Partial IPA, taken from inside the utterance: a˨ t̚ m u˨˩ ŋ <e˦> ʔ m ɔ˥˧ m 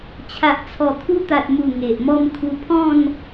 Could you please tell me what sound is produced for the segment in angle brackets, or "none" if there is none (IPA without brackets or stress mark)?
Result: e˨